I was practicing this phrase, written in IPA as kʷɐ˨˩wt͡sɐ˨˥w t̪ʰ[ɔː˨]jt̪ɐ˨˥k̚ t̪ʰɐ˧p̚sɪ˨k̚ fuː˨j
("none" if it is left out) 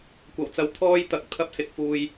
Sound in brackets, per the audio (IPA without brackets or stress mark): ɔː˥